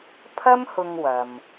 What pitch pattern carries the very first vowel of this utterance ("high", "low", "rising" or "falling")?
high